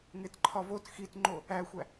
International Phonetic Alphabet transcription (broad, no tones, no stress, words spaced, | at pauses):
ŋetǃʰɒvot xitŋ͡ǃo | æxʷæ